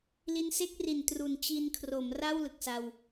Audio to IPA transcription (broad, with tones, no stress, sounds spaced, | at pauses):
l i˧ n s e˥˩ k̚ r i˨˩ n t r u˨˩ n t͡ɕ i˧ n kʰ r o˩˦ m r a˥˩ w l ɯ˨˩ k̚ s a˧ w